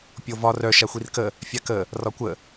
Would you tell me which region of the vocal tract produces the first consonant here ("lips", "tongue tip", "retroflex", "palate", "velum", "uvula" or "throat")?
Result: lips